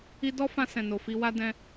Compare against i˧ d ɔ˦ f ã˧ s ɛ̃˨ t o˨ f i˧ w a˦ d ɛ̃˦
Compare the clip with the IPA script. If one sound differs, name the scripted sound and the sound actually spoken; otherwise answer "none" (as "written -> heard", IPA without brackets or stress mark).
t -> n